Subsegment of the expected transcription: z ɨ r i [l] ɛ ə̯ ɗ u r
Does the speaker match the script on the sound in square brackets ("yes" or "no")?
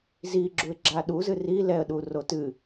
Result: yes